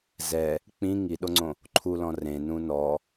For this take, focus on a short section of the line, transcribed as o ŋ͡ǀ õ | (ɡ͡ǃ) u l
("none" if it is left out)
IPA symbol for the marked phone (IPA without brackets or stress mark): ǃʰ